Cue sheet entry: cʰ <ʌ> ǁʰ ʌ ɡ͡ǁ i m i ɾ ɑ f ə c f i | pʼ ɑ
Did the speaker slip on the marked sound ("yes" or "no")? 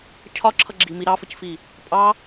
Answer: yes